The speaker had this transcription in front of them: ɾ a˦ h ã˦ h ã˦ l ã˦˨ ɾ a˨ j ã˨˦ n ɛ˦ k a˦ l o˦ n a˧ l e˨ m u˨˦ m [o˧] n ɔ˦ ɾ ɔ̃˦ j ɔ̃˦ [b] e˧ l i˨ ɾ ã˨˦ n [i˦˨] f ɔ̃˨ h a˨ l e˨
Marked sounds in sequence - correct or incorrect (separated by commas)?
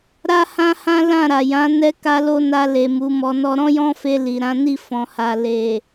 incorrect, incorrect, correct